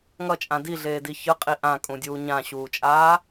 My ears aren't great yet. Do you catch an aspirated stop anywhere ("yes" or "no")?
no